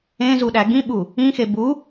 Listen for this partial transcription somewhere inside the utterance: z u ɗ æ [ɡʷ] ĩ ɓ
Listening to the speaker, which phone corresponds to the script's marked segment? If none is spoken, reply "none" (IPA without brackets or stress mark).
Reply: ɡ